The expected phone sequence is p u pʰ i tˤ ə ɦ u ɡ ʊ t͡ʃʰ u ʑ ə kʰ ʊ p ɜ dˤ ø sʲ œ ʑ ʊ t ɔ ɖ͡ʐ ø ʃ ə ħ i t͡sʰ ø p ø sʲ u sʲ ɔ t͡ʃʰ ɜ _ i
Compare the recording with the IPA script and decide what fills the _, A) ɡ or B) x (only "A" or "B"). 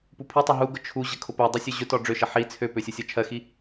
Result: B